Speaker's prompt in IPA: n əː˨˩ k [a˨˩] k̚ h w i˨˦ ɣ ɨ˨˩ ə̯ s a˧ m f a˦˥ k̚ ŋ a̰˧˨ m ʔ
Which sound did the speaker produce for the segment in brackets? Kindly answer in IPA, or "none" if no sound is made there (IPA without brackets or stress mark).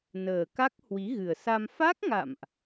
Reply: a˦˥